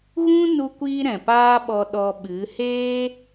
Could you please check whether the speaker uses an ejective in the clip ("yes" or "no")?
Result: no